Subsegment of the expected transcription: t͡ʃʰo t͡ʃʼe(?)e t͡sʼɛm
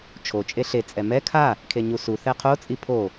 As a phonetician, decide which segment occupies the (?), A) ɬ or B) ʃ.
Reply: A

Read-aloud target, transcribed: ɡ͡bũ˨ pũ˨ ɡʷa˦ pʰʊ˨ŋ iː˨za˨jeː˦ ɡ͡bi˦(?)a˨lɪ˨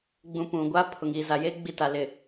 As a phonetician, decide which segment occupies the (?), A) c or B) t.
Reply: B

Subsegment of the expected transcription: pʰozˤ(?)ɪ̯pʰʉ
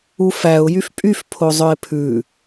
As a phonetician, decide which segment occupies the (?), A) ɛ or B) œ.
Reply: B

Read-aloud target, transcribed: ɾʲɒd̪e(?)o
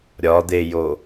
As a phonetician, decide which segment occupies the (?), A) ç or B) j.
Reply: B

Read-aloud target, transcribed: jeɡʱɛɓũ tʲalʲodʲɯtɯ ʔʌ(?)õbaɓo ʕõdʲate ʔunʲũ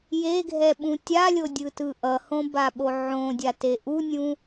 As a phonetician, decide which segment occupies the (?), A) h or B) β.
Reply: A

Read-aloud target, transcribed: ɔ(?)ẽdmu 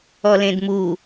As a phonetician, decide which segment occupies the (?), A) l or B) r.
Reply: A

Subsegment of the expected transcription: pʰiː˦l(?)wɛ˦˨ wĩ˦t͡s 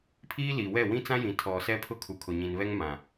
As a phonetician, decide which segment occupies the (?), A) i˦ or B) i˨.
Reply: B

